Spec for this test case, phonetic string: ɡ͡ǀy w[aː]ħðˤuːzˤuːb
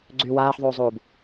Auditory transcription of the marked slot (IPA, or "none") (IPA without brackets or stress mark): aː